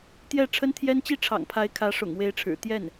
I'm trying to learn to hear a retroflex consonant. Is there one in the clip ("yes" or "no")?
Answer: yes